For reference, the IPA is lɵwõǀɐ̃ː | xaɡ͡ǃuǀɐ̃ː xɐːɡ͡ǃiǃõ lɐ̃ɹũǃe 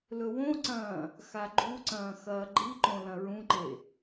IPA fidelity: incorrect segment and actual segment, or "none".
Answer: none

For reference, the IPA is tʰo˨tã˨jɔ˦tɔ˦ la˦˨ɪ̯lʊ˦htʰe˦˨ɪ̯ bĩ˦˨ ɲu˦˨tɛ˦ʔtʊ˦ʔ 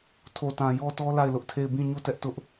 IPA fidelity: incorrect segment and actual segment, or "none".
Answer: h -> ʔ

